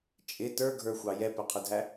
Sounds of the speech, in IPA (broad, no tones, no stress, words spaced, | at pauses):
t͡ʃʼɪ tə˞ɡʱə˞xʷɑ jɛpɛqʰʊdʱæ